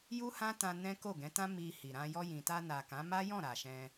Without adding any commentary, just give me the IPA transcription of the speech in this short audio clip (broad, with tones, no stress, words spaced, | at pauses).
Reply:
ju˦hã˦ tã˧ nɛ̃˦ ko˦˨ɡɛ̃˨˦tã˦ mi˧hi˨ ɾã˧ jɔ˧jĩ˨ta˧ na˨kã˨˦ ma˦jɔ̃˦˨ ɾa˨ʃɛ̃˧